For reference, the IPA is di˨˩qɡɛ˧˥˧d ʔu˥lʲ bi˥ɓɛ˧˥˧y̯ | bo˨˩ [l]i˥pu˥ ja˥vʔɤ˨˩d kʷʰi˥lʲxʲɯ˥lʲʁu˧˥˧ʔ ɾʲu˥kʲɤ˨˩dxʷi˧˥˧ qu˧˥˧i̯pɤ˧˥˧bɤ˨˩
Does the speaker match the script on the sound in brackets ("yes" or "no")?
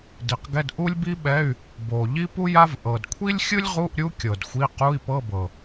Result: no